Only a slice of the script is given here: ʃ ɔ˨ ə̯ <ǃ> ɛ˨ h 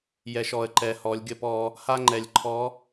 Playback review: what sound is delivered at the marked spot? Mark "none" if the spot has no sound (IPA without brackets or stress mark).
ǃ